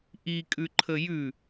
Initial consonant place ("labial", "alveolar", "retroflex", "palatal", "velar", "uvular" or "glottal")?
glottal